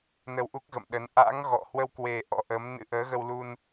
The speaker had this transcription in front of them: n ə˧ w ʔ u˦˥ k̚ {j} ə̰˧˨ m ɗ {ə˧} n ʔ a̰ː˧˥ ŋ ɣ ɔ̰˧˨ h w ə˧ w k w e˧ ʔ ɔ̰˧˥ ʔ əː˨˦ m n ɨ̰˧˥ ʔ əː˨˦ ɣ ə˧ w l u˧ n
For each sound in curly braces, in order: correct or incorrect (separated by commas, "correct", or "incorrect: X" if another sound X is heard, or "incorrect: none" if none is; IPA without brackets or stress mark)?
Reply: incorrect: ɣ, incorrect: ə˨˦